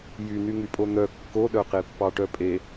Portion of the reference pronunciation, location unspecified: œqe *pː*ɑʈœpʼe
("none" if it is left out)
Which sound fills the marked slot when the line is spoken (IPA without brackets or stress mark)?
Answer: pː